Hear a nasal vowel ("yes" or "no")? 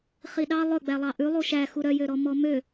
no